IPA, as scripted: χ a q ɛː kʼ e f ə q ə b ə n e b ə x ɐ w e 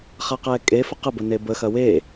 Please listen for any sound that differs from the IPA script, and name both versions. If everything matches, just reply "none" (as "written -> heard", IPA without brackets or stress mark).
none